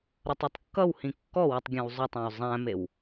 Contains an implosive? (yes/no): no